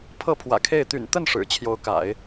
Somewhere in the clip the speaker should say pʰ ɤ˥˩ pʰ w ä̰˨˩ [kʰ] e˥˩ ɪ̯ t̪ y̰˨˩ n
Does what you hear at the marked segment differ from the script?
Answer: no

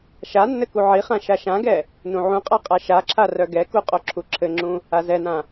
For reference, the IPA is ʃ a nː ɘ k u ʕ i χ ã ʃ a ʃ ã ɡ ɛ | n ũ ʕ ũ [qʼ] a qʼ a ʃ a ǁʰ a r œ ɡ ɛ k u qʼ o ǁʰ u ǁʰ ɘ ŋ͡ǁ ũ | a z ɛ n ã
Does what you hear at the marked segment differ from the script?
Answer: no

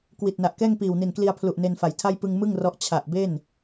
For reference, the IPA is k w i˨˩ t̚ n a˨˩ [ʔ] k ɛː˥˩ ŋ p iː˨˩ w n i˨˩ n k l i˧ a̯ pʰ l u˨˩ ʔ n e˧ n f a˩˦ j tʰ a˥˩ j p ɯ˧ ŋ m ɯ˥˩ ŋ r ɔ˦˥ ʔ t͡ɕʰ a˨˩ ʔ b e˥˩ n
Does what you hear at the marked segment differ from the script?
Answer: no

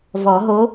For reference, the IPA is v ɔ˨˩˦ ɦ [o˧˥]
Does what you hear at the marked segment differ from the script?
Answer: no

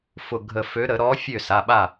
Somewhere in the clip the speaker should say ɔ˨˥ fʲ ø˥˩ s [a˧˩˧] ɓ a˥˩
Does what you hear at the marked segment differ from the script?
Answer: yes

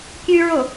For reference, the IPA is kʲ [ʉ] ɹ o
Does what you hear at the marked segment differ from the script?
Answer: no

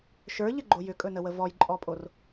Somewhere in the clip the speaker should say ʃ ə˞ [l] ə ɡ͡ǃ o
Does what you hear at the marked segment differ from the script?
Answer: yes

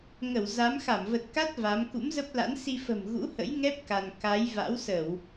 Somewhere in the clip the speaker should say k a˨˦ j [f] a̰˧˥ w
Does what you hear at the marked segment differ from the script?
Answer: yes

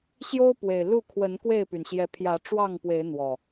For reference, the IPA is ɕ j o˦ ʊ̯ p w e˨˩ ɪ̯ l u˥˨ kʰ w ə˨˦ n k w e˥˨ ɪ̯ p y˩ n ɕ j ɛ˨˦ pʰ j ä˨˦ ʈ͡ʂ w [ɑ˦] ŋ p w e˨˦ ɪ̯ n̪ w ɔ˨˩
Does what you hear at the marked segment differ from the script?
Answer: yes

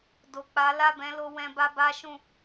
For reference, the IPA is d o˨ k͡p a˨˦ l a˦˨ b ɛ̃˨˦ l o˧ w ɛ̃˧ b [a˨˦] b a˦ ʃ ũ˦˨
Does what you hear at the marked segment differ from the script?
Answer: yes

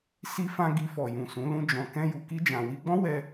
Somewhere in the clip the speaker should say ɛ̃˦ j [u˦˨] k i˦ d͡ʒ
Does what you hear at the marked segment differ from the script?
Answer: yes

